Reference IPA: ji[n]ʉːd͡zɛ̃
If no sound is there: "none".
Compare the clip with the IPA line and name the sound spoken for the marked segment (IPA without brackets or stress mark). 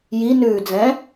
n